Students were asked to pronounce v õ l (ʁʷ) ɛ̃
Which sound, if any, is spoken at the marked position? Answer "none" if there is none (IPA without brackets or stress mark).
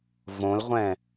ʁʷ